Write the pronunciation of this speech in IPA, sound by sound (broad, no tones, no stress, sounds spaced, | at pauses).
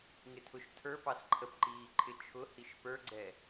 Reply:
ŋ ɪ tʰ ʊ ʃ tʰ ə˞ p ɑ s ǃʰ ə p ǃ iː ǃʰ ɪ t͡ʃʰ ʊ h i ʃ p ə˞ ɡ͡ǀ ɛ